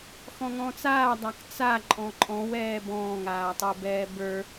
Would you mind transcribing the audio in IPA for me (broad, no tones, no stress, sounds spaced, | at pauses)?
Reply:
x ɔ̃ ŋ ɔ̃ː t͡s aː dˤ a k t͡s a ǃʼ ɔ̃ ǃʼ ɔ̃ w ɛː b ɔ̃ː ŋ aː tˤ ə˞ b ɛː b ə˞